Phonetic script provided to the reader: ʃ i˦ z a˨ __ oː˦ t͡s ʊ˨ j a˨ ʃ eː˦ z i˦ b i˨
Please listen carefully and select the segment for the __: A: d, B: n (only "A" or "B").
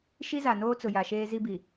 B